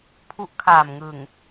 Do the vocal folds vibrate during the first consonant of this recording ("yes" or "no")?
no